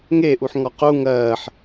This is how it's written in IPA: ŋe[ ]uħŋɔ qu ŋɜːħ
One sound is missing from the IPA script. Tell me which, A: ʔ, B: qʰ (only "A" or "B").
A